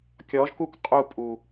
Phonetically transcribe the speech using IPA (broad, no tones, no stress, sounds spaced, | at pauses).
kʲ ɔ ʒ k u k qʼ u pʼ u